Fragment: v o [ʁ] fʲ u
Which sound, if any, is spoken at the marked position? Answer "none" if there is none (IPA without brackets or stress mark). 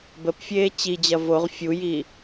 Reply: ʁ